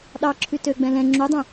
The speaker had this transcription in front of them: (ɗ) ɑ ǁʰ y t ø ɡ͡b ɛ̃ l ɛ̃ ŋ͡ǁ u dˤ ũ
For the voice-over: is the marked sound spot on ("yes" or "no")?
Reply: yes